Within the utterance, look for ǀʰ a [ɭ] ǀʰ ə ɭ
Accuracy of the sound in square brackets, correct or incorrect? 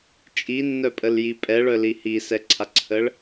incorrect